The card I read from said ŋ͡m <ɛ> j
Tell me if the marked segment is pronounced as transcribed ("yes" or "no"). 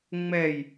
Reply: yes